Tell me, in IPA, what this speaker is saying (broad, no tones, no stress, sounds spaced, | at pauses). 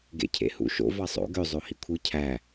ɡ ḛ cʰ ḛ h ṵ ʃ o̰ v ɑ sˤ o̰ ɡ ø zˤ o h i kʷʰ ɯ cʰ æ